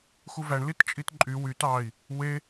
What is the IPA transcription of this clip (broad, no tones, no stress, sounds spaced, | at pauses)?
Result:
x u v æ ɳ l i t t͡ʃʼ i t ǃʼ y w y t ɑ i̯ | w e